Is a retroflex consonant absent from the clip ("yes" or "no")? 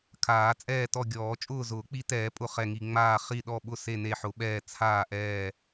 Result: yes